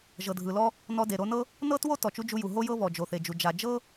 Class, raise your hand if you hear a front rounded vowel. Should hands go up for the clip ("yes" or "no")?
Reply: no